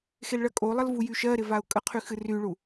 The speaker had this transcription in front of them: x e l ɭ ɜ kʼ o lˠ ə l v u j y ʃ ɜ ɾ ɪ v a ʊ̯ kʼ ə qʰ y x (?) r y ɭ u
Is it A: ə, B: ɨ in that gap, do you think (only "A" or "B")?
B